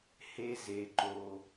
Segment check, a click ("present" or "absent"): present